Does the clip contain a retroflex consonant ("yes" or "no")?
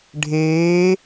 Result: yes